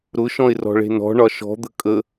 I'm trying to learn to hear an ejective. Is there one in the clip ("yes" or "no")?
yes